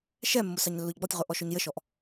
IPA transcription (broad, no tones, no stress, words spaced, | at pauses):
ʃɛmːʊ sɑɲlːʊʎɡ͡bɔtʲʁʊ ʔɔʃɔɲjəʃɔʔ